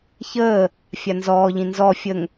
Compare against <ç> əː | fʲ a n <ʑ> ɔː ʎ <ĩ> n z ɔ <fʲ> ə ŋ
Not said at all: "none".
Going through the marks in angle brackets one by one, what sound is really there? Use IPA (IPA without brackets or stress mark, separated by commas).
ç, z, ĩ, fʲ